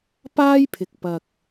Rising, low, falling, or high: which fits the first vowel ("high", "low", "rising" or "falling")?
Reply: high